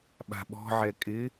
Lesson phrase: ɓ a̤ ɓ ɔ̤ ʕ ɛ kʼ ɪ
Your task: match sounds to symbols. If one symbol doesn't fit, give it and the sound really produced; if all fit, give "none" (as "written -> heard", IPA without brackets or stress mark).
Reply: none